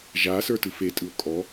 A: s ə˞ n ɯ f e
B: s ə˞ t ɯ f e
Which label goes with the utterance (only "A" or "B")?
B